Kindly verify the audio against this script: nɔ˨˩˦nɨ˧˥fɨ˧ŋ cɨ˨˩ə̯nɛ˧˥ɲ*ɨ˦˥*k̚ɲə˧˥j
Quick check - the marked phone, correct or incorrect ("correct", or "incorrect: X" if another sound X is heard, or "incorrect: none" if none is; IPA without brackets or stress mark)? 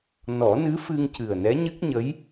correct